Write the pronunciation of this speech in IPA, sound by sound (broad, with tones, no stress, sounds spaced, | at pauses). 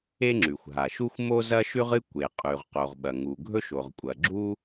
e˥ ŋ͡ǁ ʉ˩ xʷ ɦ a˩ ʃ u˥ xʷ m o˥ z ɐ˥ ʃ ʉ˥ ʁ ɨ˥ kʷ e˩ qʼ ʉ˩ ʁ q o˩ ʁ ɓ ɐ˩ ŋ u˩ ɡʱ ɵ˥ ʃ o˩ ʁ kʷʼ ɐ˩ ɡ͡ǁ u˥